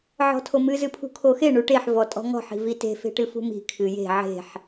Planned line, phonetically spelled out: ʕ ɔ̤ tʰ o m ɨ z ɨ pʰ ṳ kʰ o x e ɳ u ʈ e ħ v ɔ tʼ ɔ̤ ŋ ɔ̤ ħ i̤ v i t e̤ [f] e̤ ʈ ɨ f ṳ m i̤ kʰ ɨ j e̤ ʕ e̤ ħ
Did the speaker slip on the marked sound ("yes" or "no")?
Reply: no